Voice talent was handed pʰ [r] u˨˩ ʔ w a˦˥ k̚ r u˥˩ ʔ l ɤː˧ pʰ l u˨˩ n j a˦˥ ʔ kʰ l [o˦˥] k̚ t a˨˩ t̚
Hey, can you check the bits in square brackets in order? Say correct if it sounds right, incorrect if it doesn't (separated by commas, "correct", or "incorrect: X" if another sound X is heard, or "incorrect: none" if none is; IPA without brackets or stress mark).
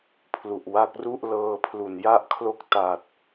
incorrect: l, correct